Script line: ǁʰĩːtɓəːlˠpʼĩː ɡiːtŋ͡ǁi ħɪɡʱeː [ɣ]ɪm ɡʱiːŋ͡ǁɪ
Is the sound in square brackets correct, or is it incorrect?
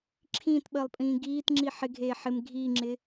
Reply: incorrect: ħ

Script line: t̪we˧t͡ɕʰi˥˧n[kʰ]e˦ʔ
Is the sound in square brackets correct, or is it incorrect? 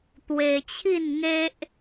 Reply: incorrect: ŋ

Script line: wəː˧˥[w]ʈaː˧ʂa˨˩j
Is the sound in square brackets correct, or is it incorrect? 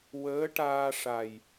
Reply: incorrect: none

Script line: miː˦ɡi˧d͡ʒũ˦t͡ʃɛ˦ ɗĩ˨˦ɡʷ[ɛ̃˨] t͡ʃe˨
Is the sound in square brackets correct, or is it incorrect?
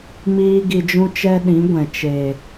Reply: correct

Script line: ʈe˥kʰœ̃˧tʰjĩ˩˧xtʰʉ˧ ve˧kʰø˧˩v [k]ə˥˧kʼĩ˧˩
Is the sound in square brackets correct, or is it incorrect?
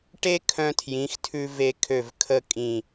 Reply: incorrect: kʰ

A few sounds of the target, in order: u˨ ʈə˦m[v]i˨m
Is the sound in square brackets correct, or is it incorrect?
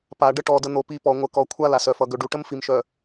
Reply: incorrect: f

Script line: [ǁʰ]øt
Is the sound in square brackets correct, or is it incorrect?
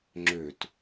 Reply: incorrect: ŋ͡ǁ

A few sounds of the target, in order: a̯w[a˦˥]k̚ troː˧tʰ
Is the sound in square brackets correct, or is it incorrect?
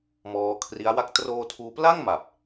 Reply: incorrect: a˥˩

